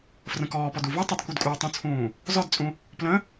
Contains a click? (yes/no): no